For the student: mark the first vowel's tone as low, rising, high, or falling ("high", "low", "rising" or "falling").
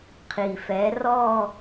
low